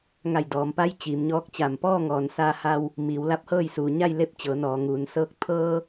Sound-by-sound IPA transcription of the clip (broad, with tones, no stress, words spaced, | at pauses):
ŋa˧˩jdɔː˩mpa˧˥j t͡ɕiː˩˧mɲɔː˧˥k̚t͡ɕa˧˩m pɔː˥˨ŋɔː˩n sa˧ha˧w | miː˩˧wla˧˥p̚hɤː˥˨j suː˩ɲa˥˨jle˧˥p̚ t͡ɕɤː˩˧nɔː˩ŋuː˩n sɤː˧k̚ t̪ʰɤː˧